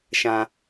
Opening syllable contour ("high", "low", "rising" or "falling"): low